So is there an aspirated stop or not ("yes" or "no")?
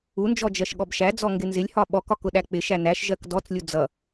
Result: no